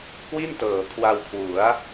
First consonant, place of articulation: velar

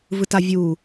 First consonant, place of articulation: labial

